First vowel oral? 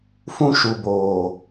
no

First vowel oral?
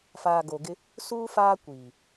yes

